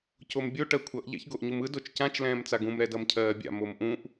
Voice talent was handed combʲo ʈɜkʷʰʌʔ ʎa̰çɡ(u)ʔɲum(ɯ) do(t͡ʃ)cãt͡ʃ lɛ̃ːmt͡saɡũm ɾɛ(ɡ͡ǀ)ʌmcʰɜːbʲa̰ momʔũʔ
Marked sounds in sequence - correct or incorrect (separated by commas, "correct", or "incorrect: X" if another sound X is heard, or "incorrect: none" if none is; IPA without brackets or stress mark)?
incorrect: o, correct, correct, incorrect: d